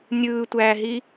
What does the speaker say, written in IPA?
nʲ ɯː tʷ æː ɦ i

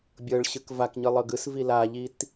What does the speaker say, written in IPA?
bʲ ɤ ɭ ɕ ɯ k v a k ɲ ɯ lˠ ɤ ɡ ɯ s v i l a ʎ i t

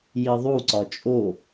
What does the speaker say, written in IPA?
j i ðˤ u ǀ ɒ t͡ʃʼ o

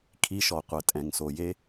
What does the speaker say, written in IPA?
kʰ i˦˥ ʃ ɔ˩ qʷ ɛ˩ tʼ ɛ̃˩ ŋ s o˩ j e˦˥

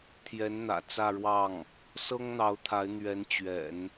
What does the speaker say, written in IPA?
t̪ʰ j ɛ˧˥ n n̪ ä̰˨˩ t͡s ä˥˧ ɻ w ɑ˥˩ ŋ | s ɤ˥ ŋ n̪ ɑ˧˥ ʊ̯ t̪ʰ a˧˥ ɪ̯ n̪ ɥ ɛ˧˥ n t͡ɕ ɥ ɛ̰˨˩˦ n

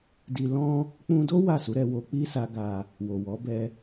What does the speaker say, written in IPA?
d i˧ l ɔ̃˦ | k͡p ũ˧ d o˦ w a˦˨ s u˨˦ ɾ ɛ˧ w o˧ k͡p i˦ s a˦ ɡ a˧ | w o˨ w ɔ˨˦ b ɛ˧

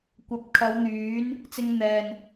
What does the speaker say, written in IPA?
kʷ ɐ˨˥ p̚ kʰ ɐ˨˧ w n̪ yː˨˥ n | t͡s ɪ˧ ŋ n̪ ɛː˨ n

